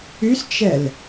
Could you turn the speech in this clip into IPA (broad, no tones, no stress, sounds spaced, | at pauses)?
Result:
y s t͡ʃ ɛ l